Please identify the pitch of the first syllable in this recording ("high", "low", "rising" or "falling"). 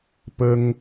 high